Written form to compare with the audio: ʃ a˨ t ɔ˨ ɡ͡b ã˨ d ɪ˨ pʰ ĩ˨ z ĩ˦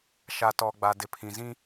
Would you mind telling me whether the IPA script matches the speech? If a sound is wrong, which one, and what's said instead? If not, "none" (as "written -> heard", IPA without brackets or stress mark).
ã˨ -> a˨